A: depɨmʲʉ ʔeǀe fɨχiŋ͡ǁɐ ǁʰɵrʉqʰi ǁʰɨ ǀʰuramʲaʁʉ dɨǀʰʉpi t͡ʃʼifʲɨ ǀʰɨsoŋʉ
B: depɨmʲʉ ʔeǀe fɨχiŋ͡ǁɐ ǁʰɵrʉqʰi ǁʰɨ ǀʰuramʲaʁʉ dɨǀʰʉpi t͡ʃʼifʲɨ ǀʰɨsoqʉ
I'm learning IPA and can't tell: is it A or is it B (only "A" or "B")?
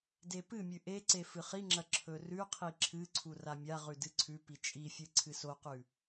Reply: B